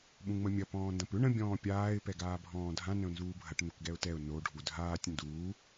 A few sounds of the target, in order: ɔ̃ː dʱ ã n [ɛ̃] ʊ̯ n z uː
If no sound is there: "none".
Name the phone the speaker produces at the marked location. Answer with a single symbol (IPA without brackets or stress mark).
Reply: ə̃